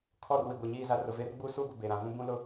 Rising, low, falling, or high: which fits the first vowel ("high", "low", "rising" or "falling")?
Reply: falling